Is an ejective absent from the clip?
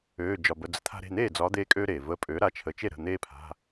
no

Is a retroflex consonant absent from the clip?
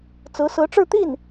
no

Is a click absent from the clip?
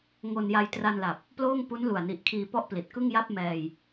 yes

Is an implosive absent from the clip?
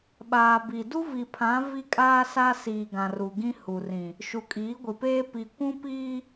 no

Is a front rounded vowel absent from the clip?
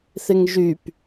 no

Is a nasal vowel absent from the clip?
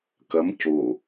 yes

